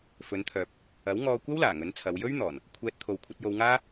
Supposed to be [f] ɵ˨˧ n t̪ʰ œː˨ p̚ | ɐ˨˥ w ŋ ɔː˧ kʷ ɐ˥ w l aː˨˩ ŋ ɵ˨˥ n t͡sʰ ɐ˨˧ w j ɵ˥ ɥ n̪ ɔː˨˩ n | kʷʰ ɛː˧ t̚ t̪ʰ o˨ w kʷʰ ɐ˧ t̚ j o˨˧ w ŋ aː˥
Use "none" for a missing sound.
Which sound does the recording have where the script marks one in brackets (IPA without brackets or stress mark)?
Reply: f